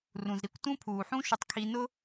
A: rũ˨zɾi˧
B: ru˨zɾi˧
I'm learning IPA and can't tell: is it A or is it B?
A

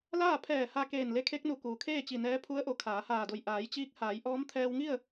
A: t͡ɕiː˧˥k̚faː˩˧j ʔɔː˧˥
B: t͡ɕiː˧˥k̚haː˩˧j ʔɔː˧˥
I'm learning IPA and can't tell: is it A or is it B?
B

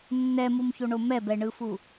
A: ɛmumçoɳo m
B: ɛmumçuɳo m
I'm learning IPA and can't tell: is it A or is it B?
A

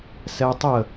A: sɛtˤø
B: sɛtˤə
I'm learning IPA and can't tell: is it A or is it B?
B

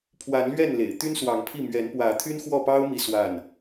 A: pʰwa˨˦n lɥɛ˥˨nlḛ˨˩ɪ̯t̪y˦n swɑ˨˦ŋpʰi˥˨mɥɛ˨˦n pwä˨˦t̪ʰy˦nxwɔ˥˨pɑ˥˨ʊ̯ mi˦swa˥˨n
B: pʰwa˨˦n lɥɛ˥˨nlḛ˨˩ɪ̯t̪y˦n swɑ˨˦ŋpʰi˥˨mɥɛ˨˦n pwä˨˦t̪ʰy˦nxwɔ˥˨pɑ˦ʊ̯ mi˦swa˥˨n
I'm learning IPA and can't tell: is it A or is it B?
B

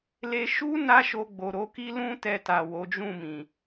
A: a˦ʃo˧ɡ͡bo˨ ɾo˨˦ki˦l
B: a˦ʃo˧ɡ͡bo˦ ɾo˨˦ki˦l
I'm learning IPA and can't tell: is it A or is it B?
A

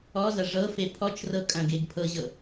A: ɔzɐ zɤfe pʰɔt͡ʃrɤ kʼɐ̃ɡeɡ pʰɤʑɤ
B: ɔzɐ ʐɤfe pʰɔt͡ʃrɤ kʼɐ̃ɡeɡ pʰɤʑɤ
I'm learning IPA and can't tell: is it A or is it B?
B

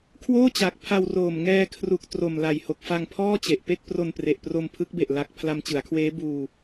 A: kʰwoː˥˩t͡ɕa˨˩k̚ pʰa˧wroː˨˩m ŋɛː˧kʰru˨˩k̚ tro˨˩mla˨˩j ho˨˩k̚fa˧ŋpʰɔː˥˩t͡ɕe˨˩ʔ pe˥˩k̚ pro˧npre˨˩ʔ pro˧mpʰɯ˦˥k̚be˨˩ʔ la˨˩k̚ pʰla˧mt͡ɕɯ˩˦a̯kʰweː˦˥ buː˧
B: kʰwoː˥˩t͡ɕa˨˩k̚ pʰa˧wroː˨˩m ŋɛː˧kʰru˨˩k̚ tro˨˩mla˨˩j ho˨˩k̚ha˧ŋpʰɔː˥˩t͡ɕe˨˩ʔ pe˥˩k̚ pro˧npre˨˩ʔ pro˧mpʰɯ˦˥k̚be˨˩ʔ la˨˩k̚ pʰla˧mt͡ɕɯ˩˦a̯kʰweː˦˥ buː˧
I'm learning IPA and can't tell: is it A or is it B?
A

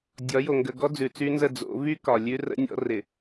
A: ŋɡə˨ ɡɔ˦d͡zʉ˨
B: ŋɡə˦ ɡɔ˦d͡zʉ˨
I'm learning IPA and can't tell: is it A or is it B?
A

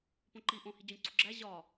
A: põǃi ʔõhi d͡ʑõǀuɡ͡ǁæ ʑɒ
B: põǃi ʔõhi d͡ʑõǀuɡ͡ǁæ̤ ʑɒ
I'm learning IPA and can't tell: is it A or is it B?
A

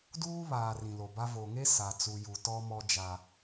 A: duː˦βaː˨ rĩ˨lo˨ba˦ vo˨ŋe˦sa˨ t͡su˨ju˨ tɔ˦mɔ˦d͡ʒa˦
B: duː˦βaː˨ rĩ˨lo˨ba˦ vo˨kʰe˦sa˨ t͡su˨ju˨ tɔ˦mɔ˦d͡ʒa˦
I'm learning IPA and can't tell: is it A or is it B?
A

